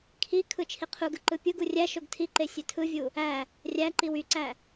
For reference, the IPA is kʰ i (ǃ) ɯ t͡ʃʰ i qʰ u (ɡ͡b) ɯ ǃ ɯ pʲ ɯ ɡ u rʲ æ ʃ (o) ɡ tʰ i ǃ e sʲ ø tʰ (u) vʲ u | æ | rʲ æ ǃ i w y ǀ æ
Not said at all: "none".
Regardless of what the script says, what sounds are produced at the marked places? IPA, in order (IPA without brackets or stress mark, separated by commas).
kʰ, ɡ, o, ɯ